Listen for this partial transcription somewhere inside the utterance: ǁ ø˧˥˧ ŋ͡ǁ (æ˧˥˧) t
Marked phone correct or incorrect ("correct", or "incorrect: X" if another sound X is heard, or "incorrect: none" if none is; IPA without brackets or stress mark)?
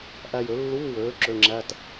correct